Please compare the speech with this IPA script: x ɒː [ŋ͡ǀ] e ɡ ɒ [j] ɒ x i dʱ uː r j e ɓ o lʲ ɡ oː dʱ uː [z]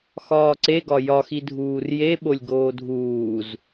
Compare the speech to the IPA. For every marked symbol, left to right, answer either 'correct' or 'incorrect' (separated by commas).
incorrect, correct, correct